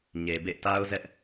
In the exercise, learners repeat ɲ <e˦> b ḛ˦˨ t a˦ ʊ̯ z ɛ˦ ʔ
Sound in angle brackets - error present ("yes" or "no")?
yes